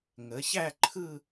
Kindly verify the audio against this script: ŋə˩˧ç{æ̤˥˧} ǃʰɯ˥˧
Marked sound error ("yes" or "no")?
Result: yes